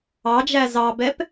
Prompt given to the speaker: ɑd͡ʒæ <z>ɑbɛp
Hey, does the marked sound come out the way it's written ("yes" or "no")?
yes